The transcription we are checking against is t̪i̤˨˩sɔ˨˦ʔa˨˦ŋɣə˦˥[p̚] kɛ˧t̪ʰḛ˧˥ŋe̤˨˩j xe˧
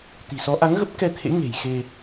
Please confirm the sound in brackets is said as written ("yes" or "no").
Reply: yes